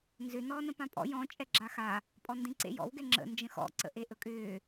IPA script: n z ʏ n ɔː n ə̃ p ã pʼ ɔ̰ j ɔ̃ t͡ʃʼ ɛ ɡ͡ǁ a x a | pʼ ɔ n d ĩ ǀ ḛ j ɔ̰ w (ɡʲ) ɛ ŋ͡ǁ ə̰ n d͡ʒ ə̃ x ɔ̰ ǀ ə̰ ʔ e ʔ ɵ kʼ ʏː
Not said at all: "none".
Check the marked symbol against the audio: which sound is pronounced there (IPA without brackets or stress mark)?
ɡ